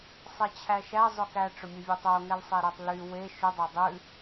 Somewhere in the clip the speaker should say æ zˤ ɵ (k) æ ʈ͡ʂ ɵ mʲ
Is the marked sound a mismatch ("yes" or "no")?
no